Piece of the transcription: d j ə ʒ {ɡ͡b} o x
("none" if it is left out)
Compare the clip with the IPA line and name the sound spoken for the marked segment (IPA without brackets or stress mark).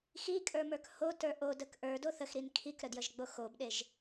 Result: ɡ͡b